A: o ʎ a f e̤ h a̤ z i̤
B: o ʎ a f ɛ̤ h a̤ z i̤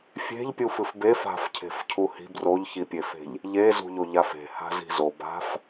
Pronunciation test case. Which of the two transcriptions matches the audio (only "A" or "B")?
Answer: A